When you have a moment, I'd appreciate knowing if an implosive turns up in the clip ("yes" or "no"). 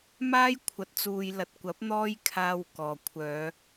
no